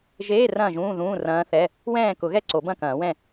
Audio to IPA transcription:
ʒeː˧˥˧ rɐ̃ː˥˨ʒũː˧˥˧ðũː˧˥˧ rɐ̃ː˧˥θɛ˧˥˧ | wɛ̃ː˥˨kʊ˨˩˦ɣɛ˥ ǀo˨˩˦bɐ̃˥˨kɐ̃ː˨˩˦wɛ̃˥˨

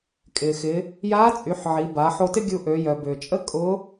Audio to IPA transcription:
kʼɪː˩xɪ˩˧ | jaː˧˥t͡sʼy˩˧ħ ʕi˩˧ba˩˧ ħo˧tɪ˥ ɡʲu˧ʔø˩˧ jœ˩bʏː˩t͡ʃʼə˥ kʼʊ˧˥

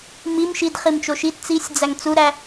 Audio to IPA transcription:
mim ʃid χimt͡ʃoʃit t͡sisʲd͡zæŋ t͡suɾæ

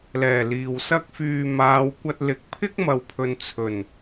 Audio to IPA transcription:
lɛː˨˩ liː˨w sɐ˥k̚fyː˧ maː˨˧wkʷɐ˧t̚ lɪ˨˥k̚pʰɪ˥k̚mɐ˨wpʰɵ˨n t͡sʰɵ˨˩n

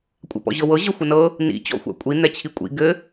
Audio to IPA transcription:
kʷʼa̰pɔ̰ʑɤwɤ ʑɤxʷɘnɤ | nḭ t͡ɕɔ̰xʷa̰kʷʼi n̪ɛt͡ɕʰikʷʼḭ ɡɘ

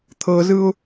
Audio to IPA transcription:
t̪ʰɤzɯʊ̯

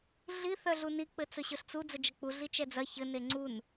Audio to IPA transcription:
ɮi θœɮuni k͡pɘt͡sɵɕɵɬt͡su d͡zəd͡ʒɐk͡pu ɮit͡ʃɛd͡zɐ çɘ neŋ͡ǀun

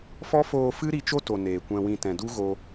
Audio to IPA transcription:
fɔ˦foː˧fɨ˦ ɾi˦ t͡ʃo˦to˨ neː˨kʷɛ̃˧wĩ˧ tɛ̃˨du˦ɣo˧

